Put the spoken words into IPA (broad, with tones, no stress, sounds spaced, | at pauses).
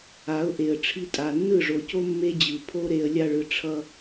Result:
a˨˦ ʊ̯ ʔ e˨ ə̯ ʈ͡ʂʰ i˦ tʼ a˨ nː ɯ˦˨ ʐ o˨ c o˦ mː e˦ d͡ʑ ɯ˨ pʰ o˦ ɾ e˧ ə̯ lʲ a˧ ɭ ɯ˨ ʈ͡ʂʰ ʌ˦